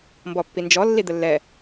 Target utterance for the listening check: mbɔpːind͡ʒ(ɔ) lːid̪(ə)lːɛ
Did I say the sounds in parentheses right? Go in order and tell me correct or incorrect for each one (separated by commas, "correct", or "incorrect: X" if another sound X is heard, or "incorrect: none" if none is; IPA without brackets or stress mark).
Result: correct, correct